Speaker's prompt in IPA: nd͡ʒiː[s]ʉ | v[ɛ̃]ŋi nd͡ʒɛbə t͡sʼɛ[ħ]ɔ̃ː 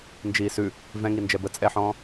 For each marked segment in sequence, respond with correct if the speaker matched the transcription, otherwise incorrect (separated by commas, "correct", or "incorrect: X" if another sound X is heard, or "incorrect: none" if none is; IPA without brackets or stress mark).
correct, correct, correct